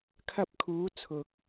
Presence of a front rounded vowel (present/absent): absent